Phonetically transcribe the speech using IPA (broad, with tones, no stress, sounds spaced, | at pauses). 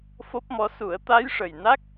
f o˦˥ p̚ m ɔ˧˥ s u˨˩˦ ə̯ t̪ a˧˥ j ʂ ə˨˩ j n a˦˥ k̚